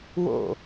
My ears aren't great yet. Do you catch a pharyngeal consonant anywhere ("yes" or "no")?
no